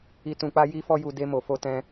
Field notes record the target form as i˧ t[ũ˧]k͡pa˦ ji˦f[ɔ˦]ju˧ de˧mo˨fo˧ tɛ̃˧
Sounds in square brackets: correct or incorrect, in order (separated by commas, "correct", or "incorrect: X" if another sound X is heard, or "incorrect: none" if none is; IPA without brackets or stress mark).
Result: correct, correct